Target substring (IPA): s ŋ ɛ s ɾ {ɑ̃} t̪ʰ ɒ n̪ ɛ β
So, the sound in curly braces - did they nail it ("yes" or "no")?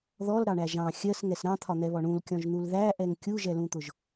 yes